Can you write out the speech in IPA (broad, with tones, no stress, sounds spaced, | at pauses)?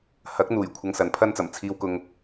h ɐ˨˥ k̚ n̪ uː˨˩ j kʷʰ ɐ˧ ŋ s ɐ˨˥ n pʰ ɐ˥ n t͡s ɐ˨˩ m t͡sʰ iː˨ w k ʊ˨ ŋ